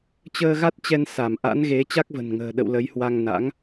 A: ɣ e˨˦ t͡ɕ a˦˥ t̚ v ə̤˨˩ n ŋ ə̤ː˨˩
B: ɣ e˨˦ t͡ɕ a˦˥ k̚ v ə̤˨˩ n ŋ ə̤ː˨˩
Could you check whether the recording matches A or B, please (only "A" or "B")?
B